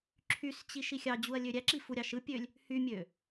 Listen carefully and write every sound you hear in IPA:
ǁʰ y s t͡ɕ i ʃ i xʲ ɑ d͡ʑ u ɐ̯ lʲ ø ɾʲ æ ǁ i f u ɾʲ ɑ ʃ ɯ pʲ ø lʲ | h y mʲ ø

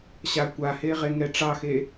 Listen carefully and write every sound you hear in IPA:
ɕ a kʷ a h e ʁ e ŋ ɛ ʈ͡ʂ ɑ x e

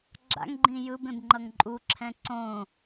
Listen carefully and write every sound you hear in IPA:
ɡ͡ǁ a̰ ŋ ɡ͡ǃ ĩ j ɯ b ẽ b ŋ͡ǃ ʌ ŋ ǃʼ u ǁʰ ɛ̃ ǀ õ

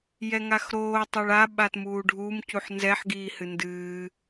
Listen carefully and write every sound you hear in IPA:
j ɛ ŋ a x ɾ oː tˤ o ɭ a ɓ a t m uː ɖʱ u m c u ħ n z ɛ ħ ɡ iː h ɨ n d ɨː

